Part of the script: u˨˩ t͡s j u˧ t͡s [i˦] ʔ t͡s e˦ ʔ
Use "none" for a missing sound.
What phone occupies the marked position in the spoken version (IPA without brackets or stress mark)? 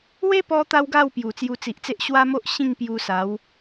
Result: i˨